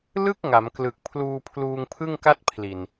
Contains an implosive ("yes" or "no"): no